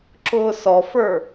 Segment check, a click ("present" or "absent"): present